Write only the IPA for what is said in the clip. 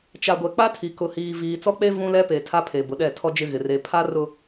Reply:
t͡ʃ a˨ ɡʷ ɛ˨ k͡p a˦ tʰ i˨ k ʊ˨ h iː˨ v iː˨ t͡s ɔ˦ k͡p e˦ v ũ˦ l ɛ˦ p e˨ tʰ a˦ pʰ e˨ b ʊ˨ ɗ ɛ˦˨ tʰ ɔ˦ d͡ʒ ɪ˦ ɣ ɪ˨ r e˨ pʰ a˦ r ʊ˨

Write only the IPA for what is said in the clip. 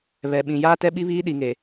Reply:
β ɛ˨ ɓ ĩ˨ j aː˦ t ɛ˦ ɓ i˦ β iː˦ ɗ i˨ ŋ e˨

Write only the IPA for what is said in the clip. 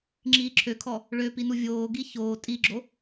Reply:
ŋ͡ǁ iː ǁʰ ø kʰ ɔ | ɭ ø p i n u vʲ oː ɡ i ç oː tʼ i ɡ͡ǁ o

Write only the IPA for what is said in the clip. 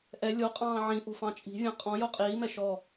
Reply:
ʔ ɛ lʲ o qʼ ɑ̃ː ʕ ĩ ʔ o̤ f ɑ̃ t͡ʃʼ i̤ vʲ ɑ̃ qʼ ɔ̃ j o qʼ iː m ɛ ʃ ɔ

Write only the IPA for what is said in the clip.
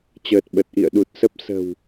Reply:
t͡ɕ əː˨˩ t̚ ɓ ə˨˩ t̚ ʔ ḭ˧˨ ə̯ ɗ u˨˩ t̚ s ə˦˥ p̚ s ə̤˨˩ w

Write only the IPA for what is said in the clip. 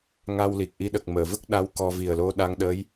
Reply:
ŋ a˧ w l i˨˩ k̚ ʔ i˧˥ ɗ ə˨˩ k̚ m əː˨˩˨ v ə˦˥ k̚ ɗ a˧˥ w k ɔ˧ v i˨˩ ə̯ l o˧˥ ɗ a˧˥ ŋ ɗ əː˧˥ j

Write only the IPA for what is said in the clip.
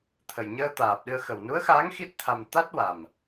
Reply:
t̪ʰ ə˨˩ j ɲ əː˧ t̪ aː˨˩ p̚ ɗ ɨ˧ ə̯ x ə˨˩ w n u˧˥ ə̯ x aː˧˥ ŋ x i˦˥ t̚ t̪ʰ a˧ m t̪ a˦˥ t̚ w a˨˩ m

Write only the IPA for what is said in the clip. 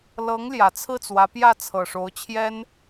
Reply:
l ɤ˧˥ ŋ l j ä˨˩ t͡sʰ ɹ̩˥˩ t͡s w ä˧˥ p j ä˥˩ t͡sʰ ɤ˨˩ ʂ o˧˥ ʊ̯ t͡ɕʰ j ɛ˥ n

